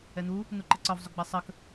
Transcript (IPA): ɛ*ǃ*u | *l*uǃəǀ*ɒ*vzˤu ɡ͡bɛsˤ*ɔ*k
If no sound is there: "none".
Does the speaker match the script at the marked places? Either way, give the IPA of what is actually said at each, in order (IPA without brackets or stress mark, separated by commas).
n̪, n̪, ɒ, ə